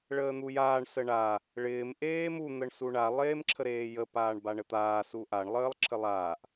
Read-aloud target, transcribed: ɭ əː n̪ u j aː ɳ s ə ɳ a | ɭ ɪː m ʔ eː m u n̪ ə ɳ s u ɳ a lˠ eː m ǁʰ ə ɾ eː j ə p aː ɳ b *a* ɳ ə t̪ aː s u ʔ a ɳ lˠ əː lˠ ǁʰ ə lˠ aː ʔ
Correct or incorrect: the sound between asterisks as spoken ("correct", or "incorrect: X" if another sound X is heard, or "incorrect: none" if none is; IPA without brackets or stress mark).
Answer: correct